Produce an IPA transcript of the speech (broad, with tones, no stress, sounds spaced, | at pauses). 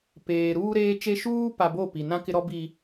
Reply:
p eː˨ ɾ uː˦ ɾ eː˦ t͡ʃ e˦ ʃ uː˦ p a˨ b o˦˨ p i˨ n ã˦ k ɪ˦ ɾ ɔ˦ b i˨